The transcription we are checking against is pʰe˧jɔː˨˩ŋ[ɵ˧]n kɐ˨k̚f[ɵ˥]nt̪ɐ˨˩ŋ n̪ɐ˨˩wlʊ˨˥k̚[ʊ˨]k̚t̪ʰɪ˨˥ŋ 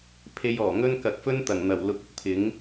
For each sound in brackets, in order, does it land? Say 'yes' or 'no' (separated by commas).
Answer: no, yes, yes